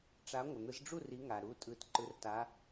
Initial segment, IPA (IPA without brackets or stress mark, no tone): ʈ͡ʂ